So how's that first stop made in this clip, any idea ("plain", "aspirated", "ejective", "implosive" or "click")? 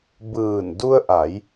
plain